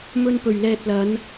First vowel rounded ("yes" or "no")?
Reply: yes